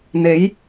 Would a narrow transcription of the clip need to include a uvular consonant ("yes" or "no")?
no